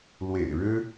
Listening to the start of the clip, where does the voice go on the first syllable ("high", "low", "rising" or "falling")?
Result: low